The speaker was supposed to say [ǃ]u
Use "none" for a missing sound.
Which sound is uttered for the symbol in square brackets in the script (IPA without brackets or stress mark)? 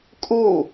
kʼ